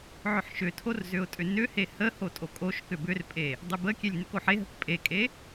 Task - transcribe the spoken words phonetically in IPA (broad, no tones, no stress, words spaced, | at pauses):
ʕʏħʃʏtʰor zʏʊ̯tʼʏnʏhe hə hotʼokʼoʃkʏ bʏrpʼe | dˤʏbəkʲelʲ nʏkoħeɦək pʼekʼe